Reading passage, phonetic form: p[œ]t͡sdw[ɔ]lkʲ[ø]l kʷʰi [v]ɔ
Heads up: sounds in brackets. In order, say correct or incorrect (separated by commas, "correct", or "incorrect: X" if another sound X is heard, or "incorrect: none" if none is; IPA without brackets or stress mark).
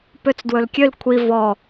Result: incorrect: ø, incorrect: ɵ, correct, correct